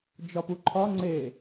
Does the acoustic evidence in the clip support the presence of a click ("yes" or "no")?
yes